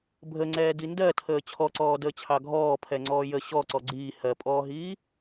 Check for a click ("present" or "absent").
present